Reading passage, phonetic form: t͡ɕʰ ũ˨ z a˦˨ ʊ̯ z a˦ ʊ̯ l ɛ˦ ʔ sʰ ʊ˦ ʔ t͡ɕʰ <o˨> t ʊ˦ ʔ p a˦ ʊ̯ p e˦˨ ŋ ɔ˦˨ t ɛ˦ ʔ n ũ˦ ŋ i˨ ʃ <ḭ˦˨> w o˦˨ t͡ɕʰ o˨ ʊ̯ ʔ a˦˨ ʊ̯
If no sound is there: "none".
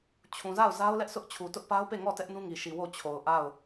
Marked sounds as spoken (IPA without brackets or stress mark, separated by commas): u˨, i˨